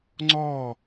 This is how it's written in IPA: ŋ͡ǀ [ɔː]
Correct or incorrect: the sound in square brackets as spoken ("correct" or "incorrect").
correct